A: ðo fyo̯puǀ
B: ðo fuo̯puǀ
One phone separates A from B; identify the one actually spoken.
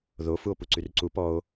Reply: B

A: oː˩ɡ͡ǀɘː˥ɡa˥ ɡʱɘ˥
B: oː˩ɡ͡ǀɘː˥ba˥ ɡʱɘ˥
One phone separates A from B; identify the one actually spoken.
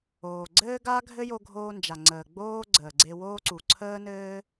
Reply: A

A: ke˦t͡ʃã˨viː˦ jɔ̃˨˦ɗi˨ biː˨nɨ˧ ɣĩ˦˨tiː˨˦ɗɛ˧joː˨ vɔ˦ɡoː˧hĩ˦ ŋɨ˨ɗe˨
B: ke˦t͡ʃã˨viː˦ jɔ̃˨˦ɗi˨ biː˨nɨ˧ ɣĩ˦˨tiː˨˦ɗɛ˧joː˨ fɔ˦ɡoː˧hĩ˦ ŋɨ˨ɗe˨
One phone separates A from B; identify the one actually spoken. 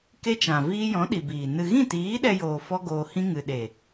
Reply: B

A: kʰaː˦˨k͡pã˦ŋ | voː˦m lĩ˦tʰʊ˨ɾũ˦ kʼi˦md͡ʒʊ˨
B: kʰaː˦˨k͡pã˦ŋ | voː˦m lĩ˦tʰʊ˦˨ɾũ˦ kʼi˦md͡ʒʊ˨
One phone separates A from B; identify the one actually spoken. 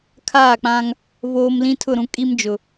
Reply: B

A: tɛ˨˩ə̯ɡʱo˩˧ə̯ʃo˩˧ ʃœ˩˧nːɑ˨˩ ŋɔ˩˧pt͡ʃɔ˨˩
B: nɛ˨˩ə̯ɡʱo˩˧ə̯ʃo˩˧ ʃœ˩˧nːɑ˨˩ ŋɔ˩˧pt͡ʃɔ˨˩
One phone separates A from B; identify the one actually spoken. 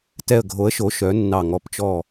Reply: A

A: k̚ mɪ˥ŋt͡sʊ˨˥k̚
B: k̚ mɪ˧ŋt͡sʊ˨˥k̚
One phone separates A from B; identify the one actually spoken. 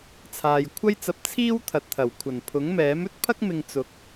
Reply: B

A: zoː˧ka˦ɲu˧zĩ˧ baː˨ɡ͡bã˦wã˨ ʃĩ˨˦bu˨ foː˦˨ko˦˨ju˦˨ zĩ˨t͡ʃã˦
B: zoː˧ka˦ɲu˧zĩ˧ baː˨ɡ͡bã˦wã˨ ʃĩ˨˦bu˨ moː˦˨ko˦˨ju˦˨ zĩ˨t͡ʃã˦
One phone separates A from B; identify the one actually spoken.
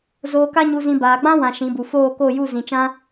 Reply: A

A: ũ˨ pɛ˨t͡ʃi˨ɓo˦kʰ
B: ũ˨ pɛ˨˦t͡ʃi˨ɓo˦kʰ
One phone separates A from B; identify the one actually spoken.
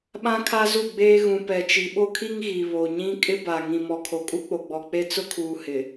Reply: A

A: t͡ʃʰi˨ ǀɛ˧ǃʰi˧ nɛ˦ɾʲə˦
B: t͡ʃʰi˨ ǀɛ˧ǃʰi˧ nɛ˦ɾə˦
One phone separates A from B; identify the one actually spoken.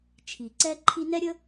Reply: A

